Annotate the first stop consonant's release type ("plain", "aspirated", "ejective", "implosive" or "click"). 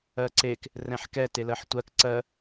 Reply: click